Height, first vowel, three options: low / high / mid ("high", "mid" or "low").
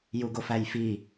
high